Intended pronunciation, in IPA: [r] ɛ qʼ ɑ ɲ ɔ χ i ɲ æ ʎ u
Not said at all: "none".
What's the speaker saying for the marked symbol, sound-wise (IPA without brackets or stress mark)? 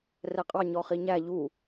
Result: r